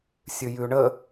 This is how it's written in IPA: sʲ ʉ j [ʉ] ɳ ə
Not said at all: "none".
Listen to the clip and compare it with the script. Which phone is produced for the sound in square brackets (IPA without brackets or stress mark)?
ʉ